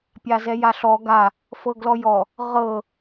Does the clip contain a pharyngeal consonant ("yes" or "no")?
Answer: no